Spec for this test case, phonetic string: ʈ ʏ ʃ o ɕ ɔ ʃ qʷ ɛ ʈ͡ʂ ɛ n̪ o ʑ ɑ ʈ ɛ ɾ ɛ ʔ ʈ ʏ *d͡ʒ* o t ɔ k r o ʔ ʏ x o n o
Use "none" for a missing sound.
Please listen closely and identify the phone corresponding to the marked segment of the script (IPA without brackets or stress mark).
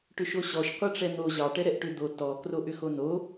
d̪